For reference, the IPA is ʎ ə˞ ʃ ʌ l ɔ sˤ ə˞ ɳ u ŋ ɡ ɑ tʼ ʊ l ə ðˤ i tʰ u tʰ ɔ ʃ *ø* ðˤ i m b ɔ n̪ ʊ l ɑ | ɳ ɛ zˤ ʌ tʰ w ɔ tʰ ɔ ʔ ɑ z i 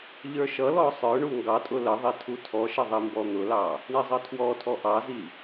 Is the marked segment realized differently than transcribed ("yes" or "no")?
yes